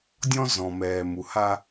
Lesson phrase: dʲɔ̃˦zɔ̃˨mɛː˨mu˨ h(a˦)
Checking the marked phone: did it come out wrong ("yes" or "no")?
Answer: no